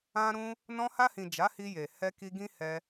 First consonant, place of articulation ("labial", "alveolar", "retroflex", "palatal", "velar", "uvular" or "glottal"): alveolar